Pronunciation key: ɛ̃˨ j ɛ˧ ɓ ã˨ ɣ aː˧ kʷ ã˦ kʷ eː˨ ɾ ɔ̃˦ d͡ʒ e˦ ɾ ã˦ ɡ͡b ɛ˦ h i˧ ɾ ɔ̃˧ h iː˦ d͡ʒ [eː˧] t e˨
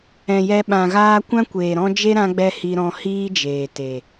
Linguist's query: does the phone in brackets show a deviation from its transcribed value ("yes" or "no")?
yes